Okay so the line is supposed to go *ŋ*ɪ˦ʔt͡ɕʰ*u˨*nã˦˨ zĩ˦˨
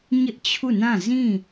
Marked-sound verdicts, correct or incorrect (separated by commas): incorrect, incorrect